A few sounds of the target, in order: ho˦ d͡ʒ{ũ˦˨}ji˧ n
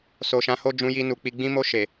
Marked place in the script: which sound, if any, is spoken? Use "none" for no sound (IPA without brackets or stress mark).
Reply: ũ˧